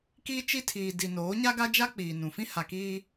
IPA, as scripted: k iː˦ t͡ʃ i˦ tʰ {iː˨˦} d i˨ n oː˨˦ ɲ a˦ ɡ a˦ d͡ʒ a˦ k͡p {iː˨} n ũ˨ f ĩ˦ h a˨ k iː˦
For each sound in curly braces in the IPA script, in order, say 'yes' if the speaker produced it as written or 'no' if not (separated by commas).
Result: no, yes